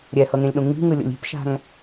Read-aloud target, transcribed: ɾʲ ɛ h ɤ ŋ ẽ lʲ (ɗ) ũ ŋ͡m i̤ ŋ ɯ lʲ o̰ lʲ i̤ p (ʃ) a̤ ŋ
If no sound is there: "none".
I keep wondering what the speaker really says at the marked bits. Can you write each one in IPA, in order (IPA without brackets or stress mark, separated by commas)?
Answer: ɗ, ʃ